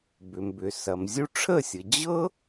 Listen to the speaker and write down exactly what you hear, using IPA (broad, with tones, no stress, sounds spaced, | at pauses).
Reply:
b ʏ˩ m b ʏ˩ s ɐ˩ m zʲ u˧ ʈ͡ʂʰ ə˥˩ sʲ ɤ˩ d͡ʑ ɤ˥